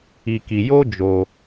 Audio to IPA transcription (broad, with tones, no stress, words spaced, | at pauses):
i˧ki˧ jo˦d͡ʒo˧